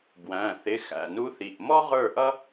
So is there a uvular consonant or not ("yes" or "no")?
yes